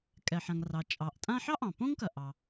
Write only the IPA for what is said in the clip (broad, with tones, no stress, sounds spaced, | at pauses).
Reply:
kʼ ɛ˩ ħ ã˩ ŋ r ɑ˩ t͡ʃʼ ɑ˩ ʔ tʼ ã˥ ħ ɑ˥ ʔ ɑ̃˩ p õ˥ ŋ k ɐ˩ ʔ ɑ˩